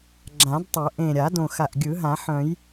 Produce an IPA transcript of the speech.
ɡ͡ǁ ã˨˩˦ d tˤ o˨˩˦ ʔ ẽ˨˩ ɾʲ a˨˩˦ d õ˨˩ x a˨˩ ʔ ɡʲ ɯ˨˩˦ ɦ ã˨˩˦ ħ œ̃˨˩˦ j

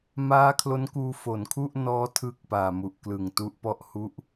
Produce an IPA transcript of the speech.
m aː˦˥ kʰ l o˦˥ n k uː˧ f o˩˦ n kʰ u˥˩ ʔ n ɔː˦˥ tʰ ɯː˥˩ k̚ p aː˨˩ m u˨˩ ʔ k l ɯ˨˩ ŋ t u˥˩ ʔ p ɔ˥˩ ʔ h u˦˥ ʔ

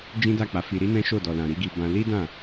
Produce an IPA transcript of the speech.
d͡ʒ ĩ˦ d a˦˨ k͡p a˨˦ f i˧ ɾ i˦ n ɛ̃˦ ʃ o˦˨ d ɔ˨ l ã˨ ɾ i˧ ɡ i˧ b ã˧ l i˦ d ã˦˨

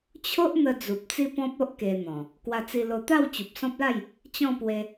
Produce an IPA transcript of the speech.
t͡ɕʰ o˦ ʔ n̪ ə˧ d͡z u˨ p̚ t͡s i˦ p ɔ̃˦ p̚ o˦ ʔ k e˧ n̪ ɔ̃˨˩ | k w a˧ t͡s i˧ l o˧ t̪ a˥˧ w t͡ɕ u˨ p̚ s ɔ̃˦ p̚ l a˥˧ j | t͡ɕ ɔ̃˥˧ p w e˧

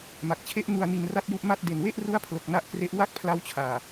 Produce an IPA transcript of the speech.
m a˨˩ k̚ t͡ɕʰ e˦˥ ʔ n u˧ a̯ n i˧ n r a˥˩ t̚ j u˥˩ ʔ m a˥˩ t̚ d e˨˩ n w e˥˩ ʔ r u˦˥ a̯ pʰ l o˨˩ k̚ n a˦˥ ʔ k r e˦˥ ʔ w a˥˩ k̚ pʰ l a˦˥ w t͡ɕʰ aː˨˩

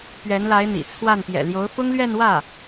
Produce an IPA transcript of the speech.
p ɥ ɛ˧˥ n l a˧˥ ɪ̯ n̪ ḭ˨˩ t͡sʰ w a˥˩ n p j ɛ̰˨˩ l j o˧˥ ʊ̯ f ʊ˥ ŋ l ɥ ɛ˥˧ n w ä˥˩

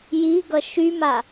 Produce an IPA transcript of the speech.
j i ɡ ʌ ʃ y m a

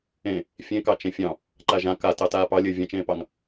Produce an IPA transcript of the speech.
ẽ | fʲ ẽ k ɑ t͡ʃ ẽ fʲ ɑ̃ | ǃ a ʒ ã k a t ɑ t aː p ɑ lʲ ɘː vʲ ã t͡ʃ ẽː p ɑ ŋ

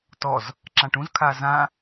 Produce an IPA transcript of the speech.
t ɔ z | ǁ ã ʈ ũ z kʰ a z ã

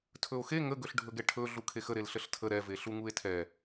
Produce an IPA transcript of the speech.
tʰ ɵ o̯ x e ŋ ə ɡ ɵ ɬ ɖʱ ɵ ɡ ɛ ʈʰ ɵ ɮ u kʰ e x ə ɾ e l ɬ ə ɬ tʰ ə ɾ ɛ v e ɬ u ŋ u e̯ tʰ ɛ

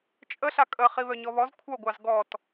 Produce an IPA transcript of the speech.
t͡ʃʼ ə ɬ a kʼ ə χ i β œ ɲ ɔ β ɔ z kʷʰ œ ɡʷ ɑ z ɡ ɔ t

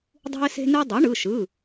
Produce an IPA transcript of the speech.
dˤ ṳ˥ ɪ̯ s e̤˥ n ɯ˥ dˤ y˩˥ ɳ ɯ˩˧˩ ʃ ɯ˩˧˩

